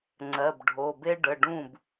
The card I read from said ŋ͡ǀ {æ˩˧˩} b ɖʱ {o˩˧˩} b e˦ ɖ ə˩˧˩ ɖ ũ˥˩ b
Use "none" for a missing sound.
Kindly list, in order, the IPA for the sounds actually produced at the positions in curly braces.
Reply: ɜ˩˧˩, o˩˧˩

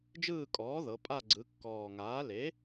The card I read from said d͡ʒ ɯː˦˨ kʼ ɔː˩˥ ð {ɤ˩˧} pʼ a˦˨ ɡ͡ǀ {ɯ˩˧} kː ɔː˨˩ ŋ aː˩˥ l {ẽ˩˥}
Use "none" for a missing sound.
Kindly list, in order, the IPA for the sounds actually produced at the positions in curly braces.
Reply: ɤ˩˧, ɯ˩˧, e˩˥

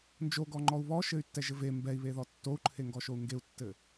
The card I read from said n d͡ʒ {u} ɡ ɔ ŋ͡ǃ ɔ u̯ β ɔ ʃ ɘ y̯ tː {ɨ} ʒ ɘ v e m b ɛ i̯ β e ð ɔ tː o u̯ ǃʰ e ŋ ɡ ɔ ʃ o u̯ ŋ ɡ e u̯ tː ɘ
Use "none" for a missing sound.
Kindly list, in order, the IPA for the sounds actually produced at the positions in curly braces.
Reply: o, ɛ

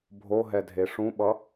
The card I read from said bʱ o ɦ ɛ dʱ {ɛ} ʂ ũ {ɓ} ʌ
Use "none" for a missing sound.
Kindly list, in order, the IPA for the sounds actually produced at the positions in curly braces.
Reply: e, ɓ

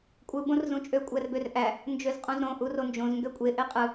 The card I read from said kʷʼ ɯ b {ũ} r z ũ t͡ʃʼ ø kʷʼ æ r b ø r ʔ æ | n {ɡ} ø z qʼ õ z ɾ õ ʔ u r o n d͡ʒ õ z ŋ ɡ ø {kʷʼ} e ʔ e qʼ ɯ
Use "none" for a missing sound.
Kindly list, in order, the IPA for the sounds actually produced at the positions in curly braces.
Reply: õ, d͡ʒ, kʷʼ

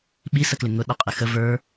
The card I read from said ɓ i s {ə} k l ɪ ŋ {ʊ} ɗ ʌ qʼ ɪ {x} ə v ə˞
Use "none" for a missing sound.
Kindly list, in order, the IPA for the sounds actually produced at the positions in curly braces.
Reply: ə, ʊ, x

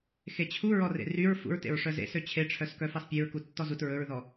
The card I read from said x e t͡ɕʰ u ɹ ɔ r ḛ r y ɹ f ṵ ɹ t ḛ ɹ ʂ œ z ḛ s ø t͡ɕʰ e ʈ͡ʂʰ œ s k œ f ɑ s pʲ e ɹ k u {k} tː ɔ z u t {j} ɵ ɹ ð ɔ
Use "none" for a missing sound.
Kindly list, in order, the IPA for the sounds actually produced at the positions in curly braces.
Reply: none, ɹ

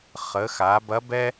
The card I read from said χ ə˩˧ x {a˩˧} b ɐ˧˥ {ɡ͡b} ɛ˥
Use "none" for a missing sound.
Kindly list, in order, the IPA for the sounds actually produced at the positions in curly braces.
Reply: a˩˧, b

